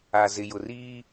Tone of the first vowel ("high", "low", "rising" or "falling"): low